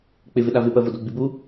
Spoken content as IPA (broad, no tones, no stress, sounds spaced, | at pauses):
k͡p ɪ v ɪ ɗ a v ɪ p ɜ v o d o ɡ͡b i b u